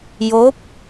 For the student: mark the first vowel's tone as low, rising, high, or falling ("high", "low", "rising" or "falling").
rising